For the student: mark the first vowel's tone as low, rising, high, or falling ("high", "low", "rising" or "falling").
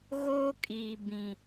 high